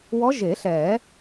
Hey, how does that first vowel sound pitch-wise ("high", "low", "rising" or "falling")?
rising